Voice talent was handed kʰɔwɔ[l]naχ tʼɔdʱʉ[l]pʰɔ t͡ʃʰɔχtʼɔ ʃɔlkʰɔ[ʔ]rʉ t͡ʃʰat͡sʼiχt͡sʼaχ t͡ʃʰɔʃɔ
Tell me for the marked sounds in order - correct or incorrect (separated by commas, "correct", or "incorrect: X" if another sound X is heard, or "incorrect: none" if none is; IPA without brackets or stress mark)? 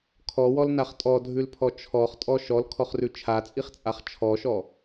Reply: correct, correct, incorrect: χ